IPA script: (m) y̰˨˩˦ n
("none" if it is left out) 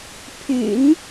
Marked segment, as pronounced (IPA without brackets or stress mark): pʰ